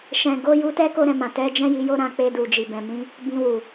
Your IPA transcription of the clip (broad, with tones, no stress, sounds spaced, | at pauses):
ʃ ɛ̃˨ ɡ o˨˦ j u˧ t ɛ˦ k o˦ ɾ ɛ̃˦˨ m ã˨ t ɛ˨˦ d͡ʒ ɛ̃˦ j i˧ j o˦ ɾ ã˦˨ k͡p e˧ d u˨ d͡ʒ i˨ b ɛ̃˨ m ĩ˨˦ | b ĩ˧ w u˨